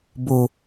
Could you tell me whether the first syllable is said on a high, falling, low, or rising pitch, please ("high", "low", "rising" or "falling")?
low